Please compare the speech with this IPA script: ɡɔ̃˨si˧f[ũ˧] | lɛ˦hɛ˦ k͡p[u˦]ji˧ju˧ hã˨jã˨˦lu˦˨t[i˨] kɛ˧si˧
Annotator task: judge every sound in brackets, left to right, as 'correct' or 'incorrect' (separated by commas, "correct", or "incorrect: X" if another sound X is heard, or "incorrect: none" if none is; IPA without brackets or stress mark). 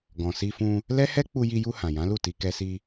correct, incorrect: u˧, incorrect: i˧